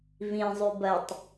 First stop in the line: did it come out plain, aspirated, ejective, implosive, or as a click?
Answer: plain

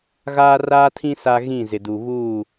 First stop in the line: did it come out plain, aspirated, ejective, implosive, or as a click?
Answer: aspirated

